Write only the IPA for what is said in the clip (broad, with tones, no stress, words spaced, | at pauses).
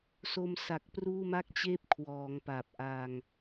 so˧m sa˨˩k̚pruː˥˩ma˥˩k̚t͡ɕeː˥˩p̚ kʰwɔː˩˦ŋ pa˨˩p̚ʔa˧ŋ